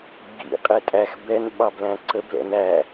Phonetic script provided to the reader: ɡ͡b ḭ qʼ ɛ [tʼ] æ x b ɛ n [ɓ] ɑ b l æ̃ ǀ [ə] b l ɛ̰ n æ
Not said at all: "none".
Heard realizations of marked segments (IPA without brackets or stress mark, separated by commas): tʼ, ɓ, ə